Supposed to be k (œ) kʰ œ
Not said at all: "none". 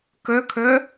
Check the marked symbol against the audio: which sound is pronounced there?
œ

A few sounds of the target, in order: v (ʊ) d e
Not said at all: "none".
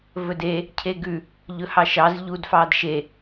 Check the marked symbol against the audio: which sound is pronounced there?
ɵ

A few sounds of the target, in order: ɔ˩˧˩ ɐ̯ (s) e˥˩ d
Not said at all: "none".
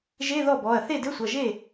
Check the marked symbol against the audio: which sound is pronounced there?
θ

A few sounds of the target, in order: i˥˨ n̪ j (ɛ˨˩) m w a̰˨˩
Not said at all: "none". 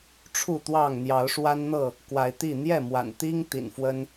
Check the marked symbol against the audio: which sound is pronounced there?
ɛ˥˨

